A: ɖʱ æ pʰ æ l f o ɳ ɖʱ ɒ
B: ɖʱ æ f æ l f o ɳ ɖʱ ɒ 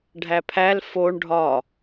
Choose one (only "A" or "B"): A